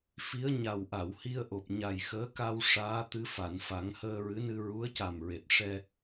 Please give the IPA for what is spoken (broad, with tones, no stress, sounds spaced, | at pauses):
f i˧˥ ə̯ ɲ a˨˩ w ʔ a˨˩˨ w h i˧ ə̯ ʔ o˨˩ p̚ ɲ a˨˩ j x əː˧˥ k a˧ w ʂ aː˧˥ t̪ ɨ˧˥ f a˨˩˨ n f a˨˩˦ ŋ h əː˧ ɹ ɨ˧˥ n ɨ˧ ɹ u˧˥ ə̯ c a˨˩ m ɹ e˨˩ t̚ ʂ ɛ˧